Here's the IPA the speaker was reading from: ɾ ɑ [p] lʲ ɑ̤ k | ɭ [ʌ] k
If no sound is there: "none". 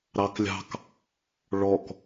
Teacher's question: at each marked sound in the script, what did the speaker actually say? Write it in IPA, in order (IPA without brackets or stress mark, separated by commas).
k, ɔ